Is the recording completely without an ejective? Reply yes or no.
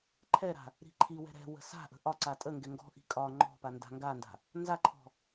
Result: no